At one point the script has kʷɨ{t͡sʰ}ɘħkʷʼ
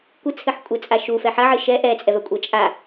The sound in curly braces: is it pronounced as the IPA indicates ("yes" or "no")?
yes